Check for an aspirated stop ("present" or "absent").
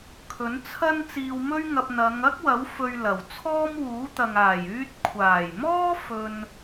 present